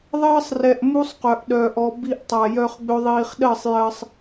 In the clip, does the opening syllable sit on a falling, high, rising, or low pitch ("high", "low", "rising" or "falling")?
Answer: high